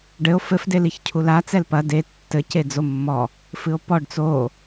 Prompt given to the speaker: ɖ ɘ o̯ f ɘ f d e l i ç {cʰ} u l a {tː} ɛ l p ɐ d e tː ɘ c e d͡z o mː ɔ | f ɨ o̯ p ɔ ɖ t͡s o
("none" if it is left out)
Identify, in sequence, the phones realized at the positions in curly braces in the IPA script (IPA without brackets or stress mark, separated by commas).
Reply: cʰ, t͡s